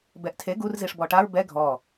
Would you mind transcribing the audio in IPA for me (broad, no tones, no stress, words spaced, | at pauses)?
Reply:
bɛʔtʰe ɡur ziʂbɔʈaɹ bɛ ɡʱɔ